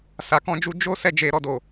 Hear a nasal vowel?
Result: yes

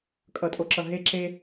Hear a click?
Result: yes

